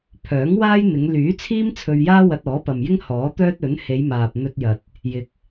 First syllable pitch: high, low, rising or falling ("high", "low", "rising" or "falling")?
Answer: rising